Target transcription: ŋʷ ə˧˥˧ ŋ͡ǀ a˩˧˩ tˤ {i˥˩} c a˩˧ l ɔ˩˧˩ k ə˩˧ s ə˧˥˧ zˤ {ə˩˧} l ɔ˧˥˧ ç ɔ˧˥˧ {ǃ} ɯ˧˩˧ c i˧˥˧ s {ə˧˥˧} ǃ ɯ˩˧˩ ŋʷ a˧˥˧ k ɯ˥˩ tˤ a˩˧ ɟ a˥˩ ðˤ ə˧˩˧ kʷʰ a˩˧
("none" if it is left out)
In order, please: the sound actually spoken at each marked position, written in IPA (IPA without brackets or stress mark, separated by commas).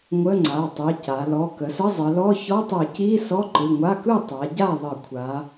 i˩˧˩, ə˩˧, tˤ, ɔ˧˥˧